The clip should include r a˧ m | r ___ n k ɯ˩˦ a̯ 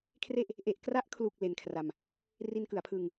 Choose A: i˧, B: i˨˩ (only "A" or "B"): A